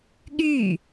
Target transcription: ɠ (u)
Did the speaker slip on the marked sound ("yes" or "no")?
yes